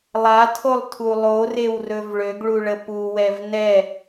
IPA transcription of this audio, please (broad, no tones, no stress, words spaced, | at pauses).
lˠatʰolˠtʰu lˠorewrɵv ɭøɡɭuɭə puwɛv nɛ